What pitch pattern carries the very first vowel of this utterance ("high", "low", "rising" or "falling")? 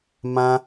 high